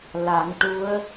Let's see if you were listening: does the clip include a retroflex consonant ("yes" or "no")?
yes